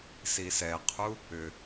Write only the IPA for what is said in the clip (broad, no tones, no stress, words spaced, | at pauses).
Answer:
sisɛqʰu | ʏ